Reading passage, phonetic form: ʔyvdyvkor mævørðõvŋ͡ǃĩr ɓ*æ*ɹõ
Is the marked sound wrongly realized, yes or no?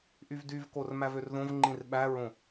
no